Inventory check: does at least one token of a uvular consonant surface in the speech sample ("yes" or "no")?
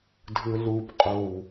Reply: yes